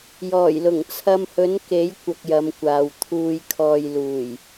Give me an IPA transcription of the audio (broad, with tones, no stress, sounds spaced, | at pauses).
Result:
j ɔː˨˩ j l ʊ˨˩ ŋ t͡sʰ ɐ˧ m h ɵ˨˥ n k e˨˥ j kʷ ɐ˧ k̚ j ɐ˨˧ m kʷ aː˨ w t̪ʰ uː˨ j kʰ ɔː˨ j l uː˨˩ j